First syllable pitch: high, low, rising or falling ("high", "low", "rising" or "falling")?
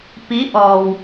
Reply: rising